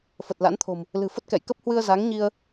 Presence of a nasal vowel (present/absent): absent